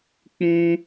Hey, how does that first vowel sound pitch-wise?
high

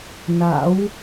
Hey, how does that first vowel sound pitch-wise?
rising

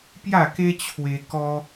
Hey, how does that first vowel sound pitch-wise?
falling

